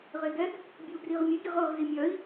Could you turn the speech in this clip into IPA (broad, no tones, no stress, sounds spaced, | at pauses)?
ʁ e ɡ ɛ ɡ | bʲ o u̯ ɡ r i ʁ mʲ e ɡ i ʁ ɤ ʁ z i mʲ œ i̯